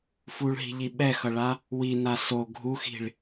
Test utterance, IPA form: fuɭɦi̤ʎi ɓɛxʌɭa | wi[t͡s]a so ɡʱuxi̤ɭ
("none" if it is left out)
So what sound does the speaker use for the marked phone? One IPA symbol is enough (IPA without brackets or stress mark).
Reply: n